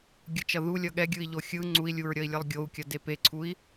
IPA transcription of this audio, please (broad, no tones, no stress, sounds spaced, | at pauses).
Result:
ɡʲ ɯ t͡ʃ ʌ ð u lʲ ʌ ɠ ɛ ɡʲ ɯ i̯ ʎ o xʲ ɯ ŋ͡ǀ u i̯ lʲ u ɹ ɾʲ ʌ i̯ lʲ ʌ lˠ ɡʲ o u̯ kʲ ʌ d e p e ǀʰ u i̯